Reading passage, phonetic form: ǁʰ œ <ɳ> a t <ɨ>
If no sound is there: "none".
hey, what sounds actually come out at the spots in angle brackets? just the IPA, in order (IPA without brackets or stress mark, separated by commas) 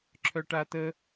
ʈ, ə